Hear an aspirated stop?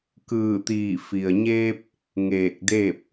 no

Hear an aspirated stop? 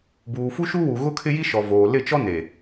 yes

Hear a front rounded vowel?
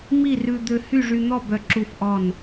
yes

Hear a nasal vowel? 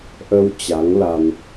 no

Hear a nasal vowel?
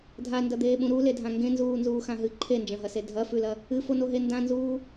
yes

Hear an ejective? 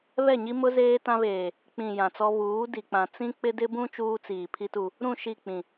no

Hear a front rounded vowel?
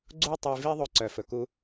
yes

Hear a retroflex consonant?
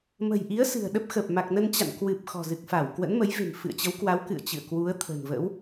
no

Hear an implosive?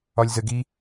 no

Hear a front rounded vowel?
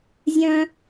yes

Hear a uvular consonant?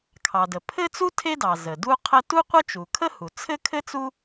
yes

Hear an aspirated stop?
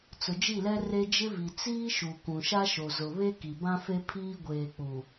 yes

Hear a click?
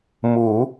no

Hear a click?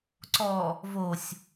yes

